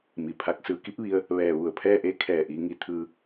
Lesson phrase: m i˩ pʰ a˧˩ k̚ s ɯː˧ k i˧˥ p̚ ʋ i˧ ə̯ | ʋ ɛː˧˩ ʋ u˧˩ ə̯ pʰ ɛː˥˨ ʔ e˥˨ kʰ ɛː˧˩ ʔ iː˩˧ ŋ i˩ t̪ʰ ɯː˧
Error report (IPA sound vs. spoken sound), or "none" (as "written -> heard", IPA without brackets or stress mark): none